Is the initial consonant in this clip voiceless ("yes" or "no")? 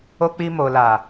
yes